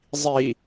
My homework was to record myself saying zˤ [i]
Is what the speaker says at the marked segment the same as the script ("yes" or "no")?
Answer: yes